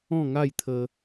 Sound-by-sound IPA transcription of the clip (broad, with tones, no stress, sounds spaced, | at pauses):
ɔ̃˥˧ ŋ a˥˧ j t̪ʰ ə˧